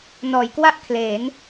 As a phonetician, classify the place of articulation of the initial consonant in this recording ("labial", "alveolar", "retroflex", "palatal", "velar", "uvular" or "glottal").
alveolar